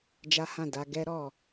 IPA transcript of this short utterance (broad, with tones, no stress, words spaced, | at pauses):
d͡ʒa˦hã˦˨ da˧ ɡɛ˦ ɾɔ˦˨